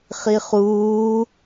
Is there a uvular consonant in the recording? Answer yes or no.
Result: yes